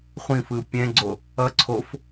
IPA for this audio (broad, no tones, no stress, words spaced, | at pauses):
χʷĩfɯ pʲɛ̃ɡ͡ǀo | ʌ ǀʰof